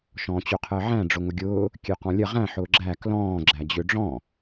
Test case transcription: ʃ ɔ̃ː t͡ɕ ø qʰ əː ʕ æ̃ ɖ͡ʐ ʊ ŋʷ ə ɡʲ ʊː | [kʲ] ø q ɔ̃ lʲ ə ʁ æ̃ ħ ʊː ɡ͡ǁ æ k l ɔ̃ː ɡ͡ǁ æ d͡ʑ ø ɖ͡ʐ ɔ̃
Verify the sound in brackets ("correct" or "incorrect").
correct